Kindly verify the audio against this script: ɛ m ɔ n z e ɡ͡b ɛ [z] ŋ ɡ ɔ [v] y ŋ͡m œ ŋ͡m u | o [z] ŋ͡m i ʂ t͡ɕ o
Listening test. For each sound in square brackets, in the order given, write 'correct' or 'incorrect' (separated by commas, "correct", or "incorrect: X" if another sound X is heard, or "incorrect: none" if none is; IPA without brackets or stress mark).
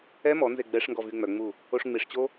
incorrect: ʂ, correct, incorrect: ʂ